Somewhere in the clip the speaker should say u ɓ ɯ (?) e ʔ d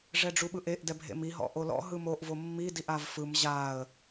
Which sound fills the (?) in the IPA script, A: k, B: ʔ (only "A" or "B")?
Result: B